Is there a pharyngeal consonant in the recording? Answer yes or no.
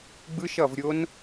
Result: no